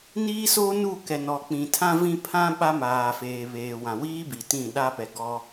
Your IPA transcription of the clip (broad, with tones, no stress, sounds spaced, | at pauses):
n iː˦ s o˦ n u˦˨ k ɛ˨ n ɔ˨ k͡p ĩ˨ tʰ ã˦ v ĩ˦ pʰ ã˦ ɓ a˦ m aː˨ f eː˨ β eː˨ w ã˨ w iː˦ b i˨ t ĩ˦˨ ɗ a˦ p ɛ˨ ɡ ɔ˦